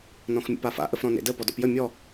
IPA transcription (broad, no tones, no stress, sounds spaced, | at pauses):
n ɔ̃ x mʲ ə̰ p a f a̰ ʔ ə f ɾ ɔ̃ n ḛ d ə p ɔ d ɔ̰ p j ə mʲ ɔ